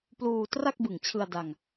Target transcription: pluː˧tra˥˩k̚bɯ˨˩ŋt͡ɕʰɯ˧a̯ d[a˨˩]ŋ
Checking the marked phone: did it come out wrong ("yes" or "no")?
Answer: yes